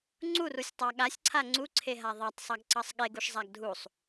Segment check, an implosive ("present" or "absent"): present